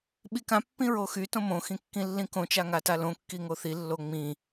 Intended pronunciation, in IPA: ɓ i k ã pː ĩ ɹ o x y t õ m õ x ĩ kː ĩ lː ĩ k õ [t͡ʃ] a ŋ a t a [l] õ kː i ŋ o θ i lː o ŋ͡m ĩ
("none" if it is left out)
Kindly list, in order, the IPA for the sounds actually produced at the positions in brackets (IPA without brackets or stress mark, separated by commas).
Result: t͡ʃ, l